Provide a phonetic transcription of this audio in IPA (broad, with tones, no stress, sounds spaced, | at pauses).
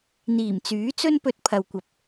n̪ iː˨˩ m t͡s yː˨˥ t͡s ɵ˥ n p ɵ˧ t̚ pʰ ɐ˨ w kʷ ɐ˨ p̚